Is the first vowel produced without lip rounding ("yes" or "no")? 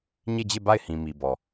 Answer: yes